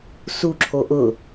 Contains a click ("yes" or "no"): yes